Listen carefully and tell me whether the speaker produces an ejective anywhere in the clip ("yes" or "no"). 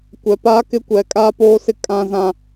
yes